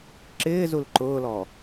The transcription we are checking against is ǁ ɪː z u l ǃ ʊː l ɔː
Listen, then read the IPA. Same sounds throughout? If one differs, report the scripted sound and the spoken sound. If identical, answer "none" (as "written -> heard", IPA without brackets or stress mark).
none